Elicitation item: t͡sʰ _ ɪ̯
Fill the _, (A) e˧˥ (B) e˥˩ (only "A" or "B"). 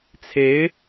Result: A